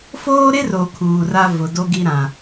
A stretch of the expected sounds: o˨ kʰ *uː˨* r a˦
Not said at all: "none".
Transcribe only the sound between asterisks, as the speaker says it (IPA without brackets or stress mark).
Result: uː˨